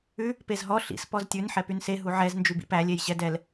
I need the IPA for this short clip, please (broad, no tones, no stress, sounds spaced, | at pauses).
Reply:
ʉ | p e z ɦ ɔ ɬ ḭ s p ɔ z tʲ ʉ n ħ ɛ p y n s e ɦ u ʕ ɛ z n d͡ʒ y b ḭ p æ lʲ e j ɕ ɛ d ɛ l